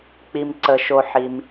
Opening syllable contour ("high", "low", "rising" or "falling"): low